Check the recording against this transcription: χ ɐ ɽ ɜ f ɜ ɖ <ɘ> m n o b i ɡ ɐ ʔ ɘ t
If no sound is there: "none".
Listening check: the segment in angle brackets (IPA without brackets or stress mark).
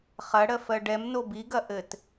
ɛ